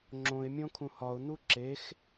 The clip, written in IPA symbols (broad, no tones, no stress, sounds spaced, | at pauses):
ŋ͡ǁ õ ɪ̯ mʲ õ kʰ ũ h ɒ ʊ̯ n̪ u ǁ e x